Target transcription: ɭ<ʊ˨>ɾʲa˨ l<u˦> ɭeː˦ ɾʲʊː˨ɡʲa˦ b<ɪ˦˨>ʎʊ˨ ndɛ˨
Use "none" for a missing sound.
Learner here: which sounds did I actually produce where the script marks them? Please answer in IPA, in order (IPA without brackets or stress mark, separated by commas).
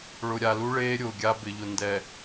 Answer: ʊ˨, u˦, ɪ˨